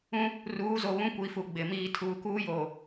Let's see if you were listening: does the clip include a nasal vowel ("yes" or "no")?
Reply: yes